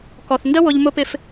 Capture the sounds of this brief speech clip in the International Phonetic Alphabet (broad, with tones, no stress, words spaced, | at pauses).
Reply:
kɔ˨θndə˦ wʊ˧ʎmʊ˦pɪ˦f